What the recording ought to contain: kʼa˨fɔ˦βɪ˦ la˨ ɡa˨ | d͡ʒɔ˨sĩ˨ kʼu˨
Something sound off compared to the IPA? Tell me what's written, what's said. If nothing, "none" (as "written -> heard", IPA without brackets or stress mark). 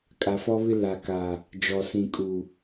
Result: ɡ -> k